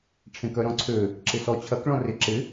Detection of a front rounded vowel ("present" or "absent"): present